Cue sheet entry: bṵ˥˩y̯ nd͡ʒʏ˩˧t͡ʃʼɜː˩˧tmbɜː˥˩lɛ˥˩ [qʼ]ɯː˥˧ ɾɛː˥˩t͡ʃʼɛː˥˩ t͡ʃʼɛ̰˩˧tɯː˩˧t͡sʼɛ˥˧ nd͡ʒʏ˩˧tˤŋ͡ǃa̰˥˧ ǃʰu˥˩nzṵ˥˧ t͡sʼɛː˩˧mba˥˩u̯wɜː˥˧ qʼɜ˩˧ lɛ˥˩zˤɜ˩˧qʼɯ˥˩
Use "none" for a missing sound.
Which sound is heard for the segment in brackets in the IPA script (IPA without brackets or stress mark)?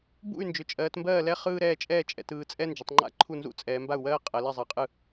χ